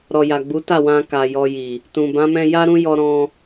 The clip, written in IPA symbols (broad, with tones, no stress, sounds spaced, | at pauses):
ɾ ɔ˨ j a˨ ɡ͡b u˨˦ t a˦˨ w ã˧ k a˨ j ɔ˧ j i˨ | t ũ˨ b ã˨˦ m ɛ̃˧ j a˦ ɾ ũ˦ j ɔ˧ ɾ ɔ̃˧